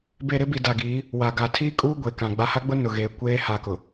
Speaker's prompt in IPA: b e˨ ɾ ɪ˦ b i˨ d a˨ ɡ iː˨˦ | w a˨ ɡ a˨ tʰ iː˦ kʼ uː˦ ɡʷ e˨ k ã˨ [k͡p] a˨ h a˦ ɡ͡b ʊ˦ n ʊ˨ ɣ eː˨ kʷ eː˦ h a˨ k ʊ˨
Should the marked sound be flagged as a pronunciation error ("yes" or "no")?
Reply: yes